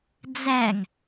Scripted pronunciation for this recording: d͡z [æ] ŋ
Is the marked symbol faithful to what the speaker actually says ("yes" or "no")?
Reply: yes